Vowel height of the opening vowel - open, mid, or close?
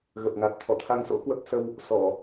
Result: mid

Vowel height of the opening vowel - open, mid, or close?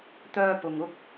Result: mid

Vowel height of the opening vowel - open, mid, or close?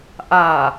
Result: open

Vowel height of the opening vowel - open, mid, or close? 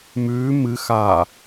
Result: close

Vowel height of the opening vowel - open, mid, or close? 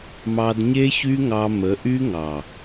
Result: open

